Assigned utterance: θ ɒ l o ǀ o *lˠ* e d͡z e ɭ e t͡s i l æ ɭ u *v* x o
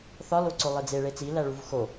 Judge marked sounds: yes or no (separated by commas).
yes, yes